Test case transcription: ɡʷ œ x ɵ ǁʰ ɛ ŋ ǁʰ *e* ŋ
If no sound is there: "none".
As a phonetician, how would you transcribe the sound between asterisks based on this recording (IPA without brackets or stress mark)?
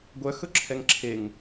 e